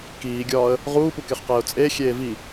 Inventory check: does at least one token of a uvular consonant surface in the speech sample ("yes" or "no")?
yes